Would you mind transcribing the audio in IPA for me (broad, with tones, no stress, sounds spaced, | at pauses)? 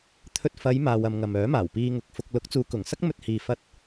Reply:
t̪ʰ ɵ˧ t̚ f ɐ˨˧ j m aː˨ w ɐ˨ m ŋ ɐ˨ m œː˨˥ m aː˨˩ w p iː˧ ŋ ʊ˨˥ k̚ f ʊ˧ k̚ l ʊ˨˥ k̚ t͡s uː˨˧ k ʊ˨˩ ŋ s ɐ˥ k̚ m ɵ˧ t̚ h iː˨ f ɐ˧ t̚